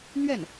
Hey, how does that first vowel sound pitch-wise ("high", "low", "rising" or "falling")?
falling